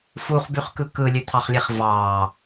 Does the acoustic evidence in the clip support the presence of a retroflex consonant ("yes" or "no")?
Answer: no